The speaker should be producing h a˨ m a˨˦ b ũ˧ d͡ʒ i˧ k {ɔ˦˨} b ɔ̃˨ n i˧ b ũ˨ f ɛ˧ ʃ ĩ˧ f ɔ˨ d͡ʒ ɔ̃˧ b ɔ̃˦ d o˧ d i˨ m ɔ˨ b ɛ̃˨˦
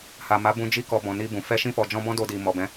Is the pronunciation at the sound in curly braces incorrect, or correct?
incorrect